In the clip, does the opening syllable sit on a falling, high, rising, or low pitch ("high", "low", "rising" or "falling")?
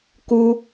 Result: high